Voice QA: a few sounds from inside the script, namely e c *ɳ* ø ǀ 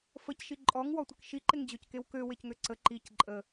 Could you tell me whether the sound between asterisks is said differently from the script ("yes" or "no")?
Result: yes